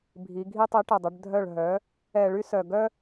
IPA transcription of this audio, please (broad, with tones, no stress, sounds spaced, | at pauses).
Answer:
bʱ i˩˧ ɡʱ i˦ tˤ i˨˥ ʈ ə˨˩ dˤ ə˩˧ ɖ dʱ œ˦˨ ɭ ɦ œ˨˥ | ɛ˧˩˧ ɭ y˦ s œ˨˩ ɡ œ˦